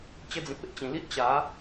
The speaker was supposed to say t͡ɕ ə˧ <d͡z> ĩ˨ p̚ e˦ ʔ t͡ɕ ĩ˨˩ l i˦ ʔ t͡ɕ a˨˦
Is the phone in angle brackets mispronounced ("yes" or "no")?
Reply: no